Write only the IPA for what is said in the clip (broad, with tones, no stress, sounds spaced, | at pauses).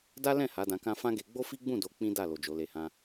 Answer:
d a˦ l ɛ̃˦˨ h a˨˦ d ã˧ k ã˦ f ã˦ ɡ e˧ ɡ͡b o˦ f i˦ ɡ͡b ũ˦˨ d o˨˦ k͡p ĩ˦ d a˦˨ l o˨ d͡ʒ o˨˦ l e˧ h ã˦